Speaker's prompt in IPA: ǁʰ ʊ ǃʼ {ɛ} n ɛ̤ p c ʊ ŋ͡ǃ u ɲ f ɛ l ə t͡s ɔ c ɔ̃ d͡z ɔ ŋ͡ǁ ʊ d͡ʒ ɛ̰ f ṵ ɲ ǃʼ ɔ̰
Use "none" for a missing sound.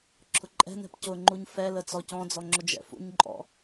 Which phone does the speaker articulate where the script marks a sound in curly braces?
ɛ̤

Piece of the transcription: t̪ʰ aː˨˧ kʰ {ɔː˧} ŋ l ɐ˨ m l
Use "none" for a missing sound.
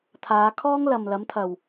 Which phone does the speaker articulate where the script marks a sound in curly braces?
ɔː˥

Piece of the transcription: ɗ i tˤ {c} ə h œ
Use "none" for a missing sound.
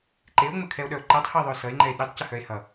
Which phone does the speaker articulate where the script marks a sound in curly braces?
c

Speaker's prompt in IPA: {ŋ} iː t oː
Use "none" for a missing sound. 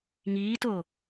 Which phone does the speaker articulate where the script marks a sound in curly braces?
ŋ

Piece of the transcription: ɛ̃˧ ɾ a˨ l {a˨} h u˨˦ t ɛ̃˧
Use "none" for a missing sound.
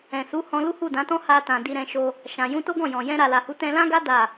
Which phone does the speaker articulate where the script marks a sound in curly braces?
a˨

